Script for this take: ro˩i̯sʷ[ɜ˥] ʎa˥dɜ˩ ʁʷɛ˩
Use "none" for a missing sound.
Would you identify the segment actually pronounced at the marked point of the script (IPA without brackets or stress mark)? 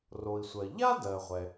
ɜ˩